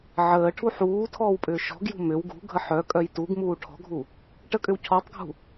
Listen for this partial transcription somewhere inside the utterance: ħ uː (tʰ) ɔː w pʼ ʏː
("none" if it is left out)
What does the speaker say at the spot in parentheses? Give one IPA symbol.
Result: tʰ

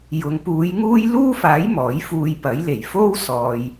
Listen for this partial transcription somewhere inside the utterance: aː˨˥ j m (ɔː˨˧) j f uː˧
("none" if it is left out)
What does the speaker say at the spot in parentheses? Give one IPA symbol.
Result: ɔː˨˥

